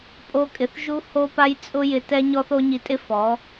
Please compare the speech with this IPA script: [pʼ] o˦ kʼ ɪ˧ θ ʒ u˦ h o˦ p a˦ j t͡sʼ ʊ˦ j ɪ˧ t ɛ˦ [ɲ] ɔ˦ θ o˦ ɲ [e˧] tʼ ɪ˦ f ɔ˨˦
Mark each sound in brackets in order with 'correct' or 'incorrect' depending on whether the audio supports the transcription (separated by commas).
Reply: correct, correct, incorrect